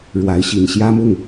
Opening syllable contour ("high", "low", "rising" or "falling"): rising